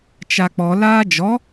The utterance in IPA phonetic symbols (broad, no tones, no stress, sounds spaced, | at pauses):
t͡ʃ a k͡p ɔ l aː d͡ʒ ɔ